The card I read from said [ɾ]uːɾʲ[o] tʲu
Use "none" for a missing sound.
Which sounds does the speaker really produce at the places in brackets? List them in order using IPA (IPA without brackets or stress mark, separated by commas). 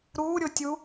ɾ, o